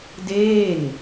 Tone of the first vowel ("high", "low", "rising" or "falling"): falling